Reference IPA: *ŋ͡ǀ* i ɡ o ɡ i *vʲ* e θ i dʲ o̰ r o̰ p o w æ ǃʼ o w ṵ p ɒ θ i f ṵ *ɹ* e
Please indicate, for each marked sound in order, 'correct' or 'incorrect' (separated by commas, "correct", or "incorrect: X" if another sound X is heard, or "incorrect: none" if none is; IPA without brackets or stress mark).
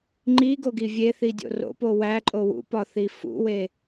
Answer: incorrect: ŋ͡ǃ, correct, incorrect: w